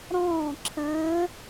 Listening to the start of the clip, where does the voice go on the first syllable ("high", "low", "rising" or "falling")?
falling